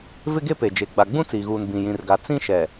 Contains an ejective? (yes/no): no